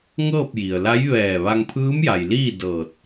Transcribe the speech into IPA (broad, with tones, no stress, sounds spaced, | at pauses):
ŋ ɤː˥˨ p̚ j i˩ ə̯ l a˧˥ j ʋ ɛː˧˩ ʋ a˧ ŋ pʰ ɯː˧˥ m j a˩ j l iː˥˨ d ɤː˧˩ t̚